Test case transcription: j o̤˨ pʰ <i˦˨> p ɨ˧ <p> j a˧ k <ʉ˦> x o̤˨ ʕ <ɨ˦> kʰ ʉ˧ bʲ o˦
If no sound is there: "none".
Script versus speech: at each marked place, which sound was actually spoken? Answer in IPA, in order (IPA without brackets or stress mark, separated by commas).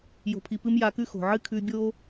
i˨, m, ʉ˦, ɨ˦